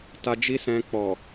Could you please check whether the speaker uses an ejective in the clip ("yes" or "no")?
no